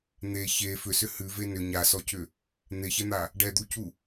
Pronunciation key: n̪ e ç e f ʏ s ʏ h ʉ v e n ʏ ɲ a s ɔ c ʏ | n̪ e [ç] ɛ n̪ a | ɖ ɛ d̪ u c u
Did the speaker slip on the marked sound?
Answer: no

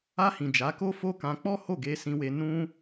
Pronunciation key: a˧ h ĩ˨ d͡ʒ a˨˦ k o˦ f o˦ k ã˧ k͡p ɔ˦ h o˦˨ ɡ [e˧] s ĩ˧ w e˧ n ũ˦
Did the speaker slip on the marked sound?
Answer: no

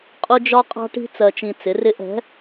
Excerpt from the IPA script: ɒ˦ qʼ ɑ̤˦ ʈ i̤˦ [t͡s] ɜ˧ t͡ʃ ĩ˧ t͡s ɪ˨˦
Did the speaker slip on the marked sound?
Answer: no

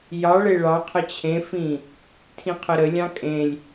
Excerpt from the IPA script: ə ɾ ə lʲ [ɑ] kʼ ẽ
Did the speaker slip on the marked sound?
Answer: yes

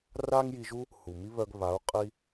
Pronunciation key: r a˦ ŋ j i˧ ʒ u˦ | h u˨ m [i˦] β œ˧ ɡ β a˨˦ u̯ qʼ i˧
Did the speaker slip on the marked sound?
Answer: no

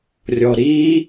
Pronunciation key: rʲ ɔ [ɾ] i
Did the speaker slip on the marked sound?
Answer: no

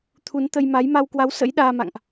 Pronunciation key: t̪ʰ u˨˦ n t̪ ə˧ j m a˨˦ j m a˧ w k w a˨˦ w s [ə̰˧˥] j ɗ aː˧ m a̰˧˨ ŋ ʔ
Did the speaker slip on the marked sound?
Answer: no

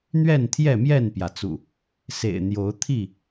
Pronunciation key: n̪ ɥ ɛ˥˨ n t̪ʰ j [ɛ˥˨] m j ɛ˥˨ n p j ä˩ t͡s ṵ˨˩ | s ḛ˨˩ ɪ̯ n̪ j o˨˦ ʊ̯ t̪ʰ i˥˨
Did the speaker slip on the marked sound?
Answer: no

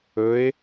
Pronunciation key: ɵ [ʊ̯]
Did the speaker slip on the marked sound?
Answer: yes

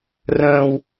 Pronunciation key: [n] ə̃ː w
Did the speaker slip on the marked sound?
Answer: yes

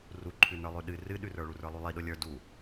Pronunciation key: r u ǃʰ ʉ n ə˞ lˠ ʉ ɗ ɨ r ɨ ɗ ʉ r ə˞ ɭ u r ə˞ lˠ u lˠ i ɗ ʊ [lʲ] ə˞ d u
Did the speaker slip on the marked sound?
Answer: no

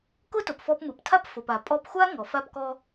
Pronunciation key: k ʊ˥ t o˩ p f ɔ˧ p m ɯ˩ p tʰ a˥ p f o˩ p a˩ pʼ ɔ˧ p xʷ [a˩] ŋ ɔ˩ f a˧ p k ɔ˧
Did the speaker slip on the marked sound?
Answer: yes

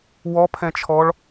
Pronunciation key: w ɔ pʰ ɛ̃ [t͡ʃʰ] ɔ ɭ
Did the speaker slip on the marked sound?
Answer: no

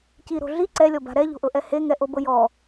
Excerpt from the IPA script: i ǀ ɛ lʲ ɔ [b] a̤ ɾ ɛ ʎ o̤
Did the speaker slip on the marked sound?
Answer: no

